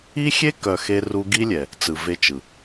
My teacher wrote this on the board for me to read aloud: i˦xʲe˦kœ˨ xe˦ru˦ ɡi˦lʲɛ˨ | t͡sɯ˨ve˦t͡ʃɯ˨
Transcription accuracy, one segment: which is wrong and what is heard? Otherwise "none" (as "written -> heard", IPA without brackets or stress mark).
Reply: none